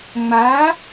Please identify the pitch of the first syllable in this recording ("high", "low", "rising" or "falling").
rising